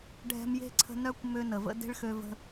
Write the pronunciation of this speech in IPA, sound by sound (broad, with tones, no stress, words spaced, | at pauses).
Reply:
ɖʱɛ̤˦mje̤˥ǀʰə̤˦ nœ˥kʷmø˦ nə˨və̰˥ de̤˥ɭxø˦və̤˦